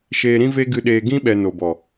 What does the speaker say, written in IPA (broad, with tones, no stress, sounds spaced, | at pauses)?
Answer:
ʃ eː˧ ɾ ĩ˦ v e˦ ɡ ɨ˦ ɗ eː˦ ɡ ĩ˦ ɓ ɛ˨ n o˨ b ɔ˨